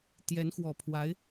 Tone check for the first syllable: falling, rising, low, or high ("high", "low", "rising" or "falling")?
rising